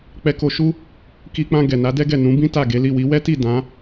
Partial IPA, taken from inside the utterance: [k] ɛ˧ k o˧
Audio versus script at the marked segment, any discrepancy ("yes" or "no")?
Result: yes